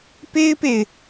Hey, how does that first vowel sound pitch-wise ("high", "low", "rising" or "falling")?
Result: high